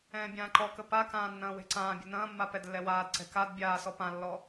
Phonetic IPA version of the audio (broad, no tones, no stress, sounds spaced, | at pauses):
ɛ̃ː bʲ ãː ǃ ɔ k ə p a k ãː nː ɐ̃ː w e̤ ǀ ãː bʲ ə̤ n ɐ̃ː mː a p ɛ d lː ɛ w aː d ǀ ɛ̤ k a d bʲ aː s ɔ p ã lː ɔ